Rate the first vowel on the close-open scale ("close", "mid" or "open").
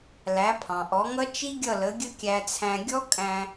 open